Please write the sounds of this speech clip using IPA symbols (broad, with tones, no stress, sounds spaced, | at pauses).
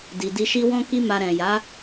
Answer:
d i˨ d i˧ ʃ i˦ w ɔ̃˦ k i˦ m a˧ ɾ ɛ̃˨ j a˨˦